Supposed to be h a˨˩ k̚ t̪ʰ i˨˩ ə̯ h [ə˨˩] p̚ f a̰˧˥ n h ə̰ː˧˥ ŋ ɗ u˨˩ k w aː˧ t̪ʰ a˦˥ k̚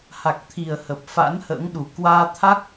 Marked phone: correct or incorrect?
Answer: correct